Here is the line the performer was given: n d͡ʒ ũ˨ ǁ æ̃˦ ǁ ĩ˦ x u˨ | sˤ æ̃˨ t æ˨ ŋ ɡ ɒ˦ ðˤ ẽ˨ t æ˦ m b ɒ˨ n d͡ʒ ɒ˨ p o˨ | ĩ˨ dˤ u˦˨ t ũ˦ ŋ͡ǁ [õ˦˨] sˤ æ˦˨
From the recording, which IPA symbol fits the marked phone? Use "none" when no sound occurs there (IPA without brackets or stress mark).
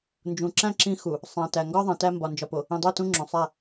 õ˨